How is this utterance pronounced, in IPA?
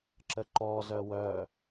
ǁ ə ǃ ɔ z œ w œ

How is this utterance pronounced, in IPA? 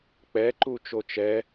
k͡p ɛ ǃ u t͡ʃ o t͡ʃ ɛ

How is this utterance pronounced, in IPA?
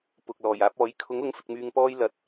p ʊ˨ k̚ l ɔː˨˩ j aː˨˥ p̚ ɔː˨˥ j kʰ ʊ˨˥ ŋ ʊ˨˥ ŋ f ɪ˨ k̚ m yː˨ ŋ p ɔː˧ j l ɐ˨ t̚

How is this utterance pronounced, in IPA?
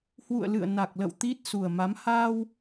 h w ṵ˧˨ ə̯ l ɨ̰˧˨ ə̯ n a˨˩ k̚ l ə̰˧˨ w t̪ i˦˥ t̚ s u˨˩ ə̯ m a˨˦ m h aː˧ w

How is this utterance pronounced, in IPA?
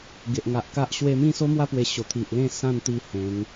ɡ e˨ ʔ ŋ a˨ ʔ k a˦ ʔ ɕ w e˧ m ĩ˥˧ s o˦ m w a˦ p w e˧ ɕ o˨˩ t̪ʰ i˨ ʔ l ẽ˥˧ s ã˥˧ n t̪ i˥˧ h ẽ˨˦ ŋ

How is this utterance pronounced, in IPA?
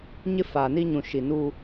ɲ ɪ˦ f aː˨ n i˦ ɲ ũ˨ ʃ i˨ n uː˦

